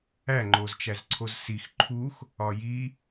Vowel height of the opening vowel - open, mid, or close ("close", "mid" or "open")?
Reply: open